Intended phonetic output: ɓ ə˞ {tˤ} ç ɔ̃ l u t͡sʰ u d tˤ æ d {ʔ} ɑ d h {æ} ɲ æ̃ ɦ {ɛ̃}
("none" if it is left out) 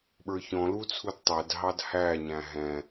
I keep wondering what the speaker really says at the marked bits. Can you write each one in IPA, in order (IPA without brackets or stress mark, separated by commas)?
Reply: none, ɦ, æ, ɛ̃